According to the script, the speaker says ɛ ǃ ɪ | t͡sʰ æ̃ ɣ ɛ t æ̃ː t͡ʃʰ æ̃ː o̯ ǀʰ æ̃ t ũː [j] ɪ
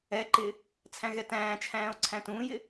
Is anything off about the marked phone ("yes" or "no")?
no